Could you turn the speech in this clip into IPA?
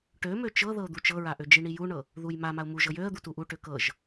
ʈ ø m ø t͡ʃ ɤ ð ɤ ʊ̯ d̪ u t͡ʃ ɤ ɹ a ʔ ø d͡ʒ i ɳ i j u ɳ ɤ | ð u j m a m a ʊ̯ m u ʒ ɤ j ø ə̯ d̪ u t u ʔ u ʈ ø k ɤ ʒ

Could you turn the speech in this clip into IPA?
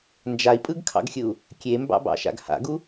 n d͡ʒ a i̯ pʼ ɯ ɡ kʰ ɑ̰ ɡ xʲ ɯ u̯ | kʲ e m b ɑ̰ b ɑ̰ ʃ a̰ ɡ h a̰ ɡ u

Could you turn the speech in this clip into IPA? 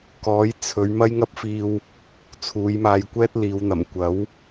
k ɔː˨˥ j t͡sʰ ɵ˨˧ ɥ m ɐ˥ j ŋ ɐ˥ p̚ f iː˧ w | t͡sʰ uː˨˧ j m aː˧ j kʷ ɛː˥ t̚ l iː˨˧ w n̪ ɐ˨˩ m kʷ ɐ˨˥ w

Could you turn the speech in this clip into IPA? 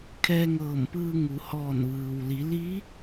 kʰ ɛː˧ ŋ ɤː˧˩ m p ɯː˧ ŋ u˩˧ h ɔː˧˩ n ʋ ɯː˩ w l i˩˧ l i˧˥

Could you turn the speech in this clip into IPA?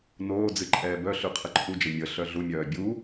n oː d͡z ɨ ǃʼ ɛː b œ ɬ ʉ qʰ ə ǃʰ u d͡ʒ ə mʲ ə ɬ œ ɮ u mʲ œː bʲ u

